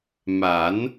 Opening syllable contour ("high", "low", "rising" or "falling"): rising